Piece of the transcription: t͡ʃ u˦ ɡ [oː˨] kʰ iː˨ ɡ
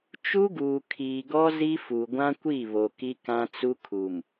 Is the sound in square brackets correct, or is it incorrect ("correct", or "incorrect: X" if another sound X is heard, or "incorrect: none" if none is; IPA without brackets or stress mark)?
incorrect: uː˨